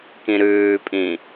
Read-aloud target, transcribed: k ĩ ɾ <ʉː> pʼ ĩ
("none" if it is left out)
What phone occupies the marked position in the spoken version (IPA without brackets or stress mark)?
ʉː